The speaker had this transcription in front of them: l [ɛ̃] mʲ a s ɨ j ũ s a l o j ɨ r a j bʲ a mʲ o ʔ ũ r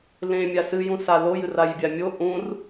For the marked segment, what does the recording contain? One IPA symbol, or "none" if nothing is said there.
ẽ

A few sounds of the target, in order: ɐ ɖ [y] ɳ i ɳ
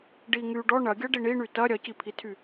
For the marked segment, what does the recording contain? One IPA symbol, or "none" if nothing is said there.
i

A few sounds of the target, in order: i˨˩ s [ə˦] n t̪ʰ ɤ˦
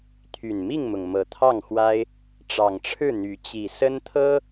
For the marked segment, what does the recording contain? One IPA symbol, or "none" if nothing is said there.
ə˦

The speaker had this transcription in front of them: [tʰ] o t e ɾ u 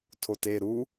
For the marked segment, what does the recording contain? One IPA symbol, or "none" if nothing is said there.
tʰ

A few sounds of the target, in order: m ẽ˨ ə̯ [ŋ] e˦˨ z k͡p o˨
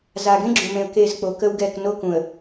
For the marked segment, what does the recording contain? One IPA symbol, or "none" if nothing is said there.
k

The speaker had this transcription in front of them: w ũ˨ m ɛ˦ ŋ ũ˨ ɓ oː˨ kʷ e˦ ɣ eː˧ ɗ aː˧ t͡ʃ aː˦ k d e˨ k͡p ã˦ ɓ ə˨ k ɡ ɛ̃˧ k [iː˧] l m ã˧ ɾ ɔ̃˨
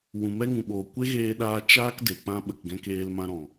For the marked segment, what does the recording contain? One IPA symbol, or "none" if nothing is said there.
eː˧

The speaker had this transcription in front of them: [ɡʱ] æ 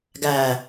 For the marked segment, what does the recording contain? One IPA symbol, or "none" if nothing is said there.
ɡ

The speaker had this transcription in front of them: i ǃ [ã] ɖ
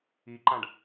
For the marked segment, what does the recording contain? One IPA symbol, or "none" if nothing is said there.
ã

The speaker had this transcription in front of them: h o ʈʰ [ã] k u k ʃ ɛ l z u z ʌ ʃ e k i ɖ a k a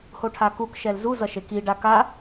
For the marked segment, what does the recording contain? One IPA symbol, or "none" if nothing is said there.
a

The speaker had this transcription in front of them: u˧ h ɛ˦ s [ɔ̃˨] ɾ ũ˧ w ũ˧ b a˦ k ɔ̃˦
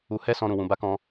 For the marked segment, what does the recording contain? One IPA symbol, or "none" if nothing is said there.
ɔ̃˧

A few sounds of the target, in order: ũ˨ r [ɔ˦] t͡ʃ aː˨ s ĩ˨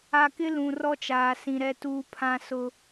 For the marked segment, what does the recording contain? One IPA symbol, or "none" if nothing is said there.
ɔ˦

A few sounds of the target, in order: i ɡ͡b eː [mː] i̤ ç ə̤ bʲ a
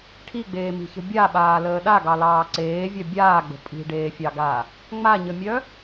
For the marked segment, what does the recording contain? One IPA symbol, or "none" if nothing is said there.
m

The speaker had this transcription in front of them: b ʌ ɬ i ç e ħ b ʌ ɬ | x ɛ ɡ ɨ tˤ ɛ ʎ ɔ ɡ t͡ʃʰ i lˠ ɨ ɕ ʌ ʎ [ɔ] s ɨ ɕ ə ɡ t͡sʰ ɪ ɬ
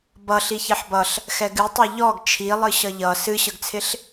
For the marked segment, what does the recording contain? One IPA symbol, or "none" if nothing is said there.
ʌ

